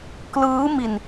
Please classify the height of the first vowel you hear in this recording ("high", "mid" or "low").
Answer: high